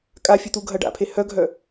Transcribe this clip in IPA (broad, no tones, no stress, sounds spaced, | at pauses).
kʼ a fʲ œ t̪ u ɡʱ ɐ ɖ a̰ pʰ e h œ ɡʱ œ